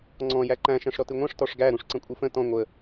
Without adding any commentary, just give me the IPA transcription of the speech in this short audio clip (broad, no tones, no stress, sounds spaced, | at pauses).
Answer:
ŋ͡ǀ ɔ̃ j æ ǃ æ̃ ʃ æ̃ ʂ ɾ ɔ t ɨ ŋʷ æ̃ ʂ t ɔ ʂ ɡ æ ɾ ũ ʂ ǀ ə̃ kʷʼ ɨ f ə̃ t ɔ̃ ŋʷ ə